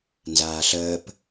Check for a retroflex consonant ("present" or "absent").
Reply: absent